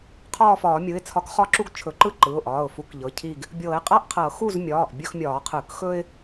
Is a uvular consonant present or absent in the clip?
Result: present